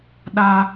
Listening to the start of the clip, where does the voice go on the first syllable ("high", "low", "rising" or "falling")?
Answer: high